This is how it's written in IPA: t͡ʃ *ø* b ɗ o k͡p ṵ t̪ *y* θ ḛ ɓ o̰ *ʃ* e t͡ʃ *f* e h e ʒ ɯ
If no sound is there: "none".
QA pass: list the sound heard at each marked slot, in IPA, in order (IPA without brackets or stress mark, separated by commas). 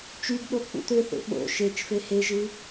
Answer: y, ø, ʃ, f